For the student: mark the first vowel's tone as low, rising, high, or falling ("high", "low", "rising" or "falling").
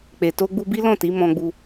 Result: low